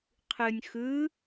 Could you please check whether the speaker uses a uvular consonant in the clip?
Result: yes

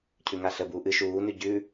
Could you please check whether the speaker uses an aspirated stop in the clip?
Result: yes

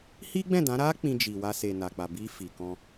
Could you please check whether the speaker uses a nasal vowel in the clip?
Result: yes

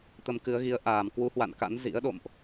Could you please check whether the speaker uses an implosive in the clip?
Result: yes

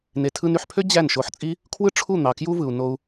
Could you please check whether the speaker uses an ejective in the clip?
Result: yes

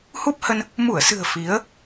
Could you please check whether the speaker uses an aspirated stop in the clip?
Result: no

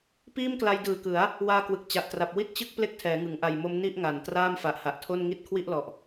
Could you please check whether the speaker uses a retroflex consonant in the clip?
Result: no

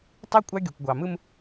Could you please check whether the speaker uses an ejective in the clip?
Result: yes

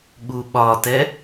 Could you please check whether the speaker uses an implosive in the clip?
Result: yes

